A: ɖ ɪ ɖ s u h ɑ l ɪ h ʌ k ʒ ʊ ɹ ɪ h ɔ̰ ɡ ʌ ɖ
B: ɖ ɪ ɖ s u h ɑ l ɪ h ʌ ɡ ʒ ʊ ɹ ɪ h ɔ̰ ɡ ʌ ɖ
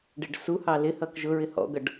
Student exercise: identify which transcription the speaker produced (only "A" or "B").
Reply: A